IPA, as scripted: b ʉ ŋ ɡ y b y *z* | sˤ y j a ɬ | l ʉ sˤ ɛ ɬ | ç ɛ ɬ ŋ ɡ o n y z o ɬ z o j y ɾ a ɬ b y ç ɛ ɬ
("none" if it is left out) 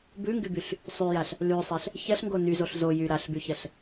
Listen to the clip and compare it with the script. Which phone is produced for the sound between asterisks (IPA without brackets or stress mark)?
ɬ